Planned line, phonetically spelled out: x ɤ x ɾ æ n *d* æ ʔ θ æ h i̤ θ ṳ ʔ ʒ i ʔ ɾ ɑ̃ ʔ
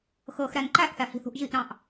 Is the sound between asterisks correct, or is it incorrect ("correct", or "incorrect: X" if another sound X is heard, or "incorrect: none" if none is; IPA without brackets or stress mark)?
incorrect: ǃ